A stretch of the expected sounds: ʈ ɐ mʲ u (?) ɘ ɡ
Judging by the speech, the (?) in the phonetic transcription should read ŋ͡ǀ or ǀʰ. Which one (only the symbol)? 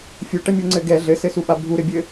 ŋ͡ǀ